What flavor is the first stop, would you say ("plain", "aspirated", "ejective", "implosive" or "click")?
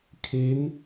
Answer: aspirated